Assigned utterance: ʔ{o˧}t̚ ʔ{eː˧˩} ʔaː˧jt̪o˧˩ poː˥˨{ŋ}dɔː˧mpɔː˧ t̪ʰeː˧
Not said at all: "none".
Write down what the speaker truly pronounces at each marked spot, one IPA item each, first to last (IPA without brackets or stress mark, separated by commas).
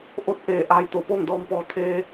o˧˥, eː˧˩, ŋ